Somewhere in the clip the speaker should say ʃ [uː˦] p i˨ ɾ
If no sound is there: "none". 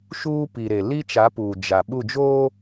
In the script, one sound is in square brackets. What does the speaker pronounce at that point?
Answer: uː˦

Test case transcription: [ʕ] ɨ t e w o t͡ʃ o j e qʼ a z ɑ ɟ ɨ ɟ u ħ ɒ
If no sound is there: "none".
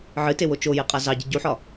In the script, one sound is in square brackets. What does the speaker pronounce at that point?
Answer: ʕ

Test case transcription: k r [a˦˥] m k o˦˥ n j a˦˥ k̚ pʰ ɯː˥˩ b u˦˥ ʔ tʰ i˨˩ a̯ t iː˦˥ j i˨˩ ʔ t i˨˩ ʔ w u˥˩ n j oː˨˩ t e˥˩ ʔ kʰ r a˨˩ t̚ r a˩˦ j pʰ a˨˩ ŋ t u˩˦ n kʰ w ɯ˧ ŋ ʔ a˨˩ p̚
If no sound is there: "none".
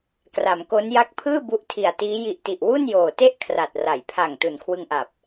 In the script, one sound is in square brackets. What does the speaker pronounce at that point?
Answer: a˩˦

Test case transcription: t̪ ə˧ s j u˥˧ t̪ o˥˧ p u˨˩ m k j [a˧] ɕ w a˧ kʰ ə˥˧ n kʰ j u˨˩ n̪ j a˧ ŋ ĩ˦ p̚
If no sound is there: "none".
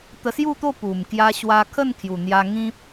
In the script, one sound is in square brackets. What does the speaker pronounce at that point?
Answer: a˧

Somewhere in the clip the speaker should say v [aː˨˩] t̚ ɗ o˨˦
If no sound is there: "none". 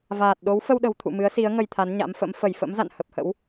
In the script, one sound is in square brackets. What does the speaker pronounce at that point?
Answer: aː˨˩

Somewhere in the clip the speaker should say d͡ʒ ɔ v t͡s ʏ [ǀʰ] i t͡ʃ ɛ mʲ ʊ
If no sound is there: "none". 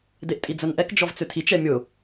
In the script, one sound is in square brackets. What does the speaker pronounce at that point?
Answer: tʰ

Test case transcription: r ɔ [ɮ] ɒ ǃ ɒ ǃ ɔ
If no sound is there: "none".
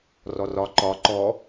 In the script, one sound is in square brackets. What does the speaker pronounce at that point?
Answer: r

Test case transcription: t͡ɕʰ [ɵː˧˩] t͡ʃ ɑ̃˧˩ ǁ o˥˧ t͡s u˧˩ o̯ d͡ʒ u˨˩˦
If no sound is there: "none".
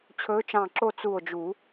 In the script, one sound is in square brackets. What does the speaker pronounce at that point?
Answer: ɵː˧˥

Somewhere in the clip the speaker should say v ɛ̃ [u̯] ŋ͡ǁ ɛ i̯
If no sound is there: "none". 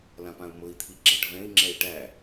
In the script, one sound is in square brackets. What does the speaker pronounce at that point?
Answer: i̯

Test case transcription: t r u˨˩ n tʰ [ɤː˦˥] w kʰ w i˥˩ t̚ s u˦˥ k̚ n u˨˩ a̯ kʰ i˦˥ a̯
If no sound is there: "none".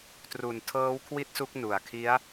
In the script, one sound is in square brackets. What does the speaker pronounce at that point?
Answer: ɤː˦˥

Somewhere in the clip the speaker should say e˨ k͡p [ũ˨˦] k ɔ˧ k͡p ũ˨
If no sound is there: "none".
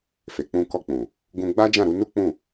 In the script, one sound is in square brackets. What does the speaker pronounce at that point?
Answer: ũ˧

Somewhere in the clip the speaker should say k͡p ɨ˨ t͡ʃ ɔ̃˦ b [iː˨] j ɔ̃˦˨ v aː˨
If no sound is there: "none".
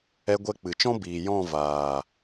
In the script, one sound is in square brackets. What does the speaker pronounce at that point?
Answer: iː˨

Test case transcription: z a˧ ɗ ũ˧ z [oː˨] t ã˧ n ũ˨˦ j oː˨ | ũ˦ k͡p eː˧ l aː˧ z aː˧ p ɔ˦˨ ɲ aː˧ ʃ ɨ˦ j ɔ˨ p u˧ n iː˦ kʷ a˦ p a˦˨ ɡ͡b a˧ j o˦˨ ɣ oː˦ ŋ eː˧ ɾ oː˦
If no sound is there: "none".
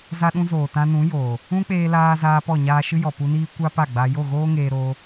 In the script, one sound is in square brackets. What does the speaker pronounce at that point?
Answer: oː˨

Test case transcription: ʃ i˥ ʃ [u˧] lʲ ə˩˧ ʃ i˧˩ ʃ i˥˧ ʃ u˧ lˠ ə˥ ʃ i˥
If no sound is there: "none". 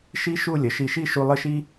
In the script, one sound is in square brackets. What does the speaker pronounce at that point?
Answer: u˥˧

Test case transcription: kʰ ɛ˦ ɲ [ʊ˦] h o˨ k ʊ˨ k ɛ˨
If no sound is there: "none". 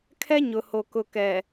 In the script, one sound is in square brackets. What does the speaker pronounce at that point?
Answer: ʊ˨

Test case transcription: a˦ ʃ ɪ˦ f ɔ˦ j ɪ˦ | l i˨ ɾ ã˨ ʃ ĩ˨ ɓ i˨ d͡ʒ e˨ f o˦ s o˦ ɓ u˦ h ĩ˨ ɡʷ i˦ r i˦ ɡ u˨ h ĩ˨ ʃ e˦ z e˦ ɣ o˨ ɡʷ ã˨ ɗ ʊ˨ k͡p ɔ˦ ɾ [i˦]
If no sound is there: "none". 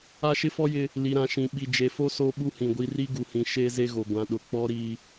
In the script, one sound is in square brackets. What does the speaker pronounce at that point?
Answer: i˦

